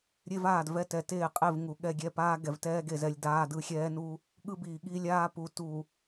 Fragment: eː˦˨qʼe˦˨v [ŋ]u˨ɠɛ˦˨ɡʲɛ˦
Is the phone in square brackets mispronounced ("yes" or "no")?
no